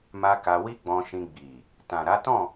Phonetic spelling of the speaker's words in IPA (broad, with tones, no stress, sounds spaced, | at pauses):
m a˧ k a˧ w i˦ ɡ͡b ɔ̃˧ ʃ ĩ˧ ɡ͡b i˨ | t ã˨ ɾ a˨˦ t ɔ̃˦˨